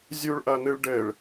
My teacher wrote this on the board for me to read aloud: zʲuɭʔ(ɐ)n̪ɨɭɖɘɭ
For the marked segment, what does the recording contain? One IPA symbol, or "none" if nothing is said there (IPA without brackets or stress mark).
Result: ɐ